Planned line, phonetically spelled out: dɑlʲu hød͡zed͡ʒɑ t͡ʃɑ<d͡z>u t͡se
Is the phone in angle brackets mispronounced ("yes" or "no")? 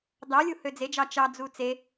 no